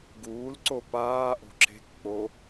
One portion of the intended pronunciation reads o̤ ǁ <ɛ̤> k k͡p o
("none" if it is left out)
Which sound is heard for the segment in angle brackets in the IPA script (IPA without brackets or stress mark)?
e̤